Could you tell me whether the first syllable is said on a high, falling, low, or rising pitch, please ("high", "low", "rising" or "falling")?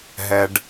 low